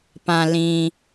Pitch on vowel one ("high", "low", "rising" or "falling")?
low